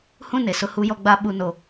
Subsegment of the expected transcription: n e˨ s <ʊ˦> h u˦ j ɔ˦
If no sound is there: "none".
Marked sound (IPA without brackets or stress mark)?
ʊ˦